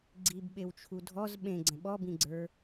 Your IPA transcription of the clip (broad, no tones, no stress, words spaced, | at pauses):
ɡ͡ǀibɓewt͡ʃʰu dʱɔz ɓẽɡ͡ǀə̃ ɓɔbĩɡ͡ǀə˞